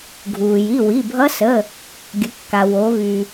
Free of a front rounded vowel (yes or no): no